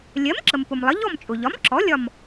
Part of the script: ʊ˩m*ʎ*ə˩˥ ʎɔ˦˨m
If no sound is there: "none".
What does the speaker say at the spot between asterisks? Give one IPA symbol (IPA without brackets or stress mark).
lˠ